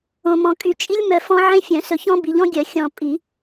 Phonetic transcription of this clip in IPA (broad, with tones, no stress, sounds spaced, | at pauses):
õ˨ m ɔ̃˨ kʼ y˨ t͡ʃʼ i˦ lʲ m œ˨ f ɔ̃˦ ʕ ẽ˦ fʲ œ̃˨˩˦ s ɵ˨ ç ɔ̃˦ b i˨ ʎ ɔ̃˦ ɡʲ œ˨˩˦ xʲ ɔ̃˨ pʼ i˨˩˦